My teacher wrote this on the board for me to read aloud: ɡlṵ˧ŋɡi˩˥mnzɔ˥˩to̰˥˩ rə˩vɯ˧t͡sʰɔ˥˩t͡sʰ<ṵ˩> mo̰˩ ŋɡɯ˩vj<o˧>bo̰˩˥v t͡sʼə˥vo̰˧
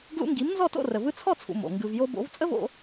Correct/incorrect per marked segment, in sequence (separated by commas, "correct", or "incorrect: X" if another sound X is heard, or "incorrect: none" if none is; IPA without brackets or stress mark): correct, correct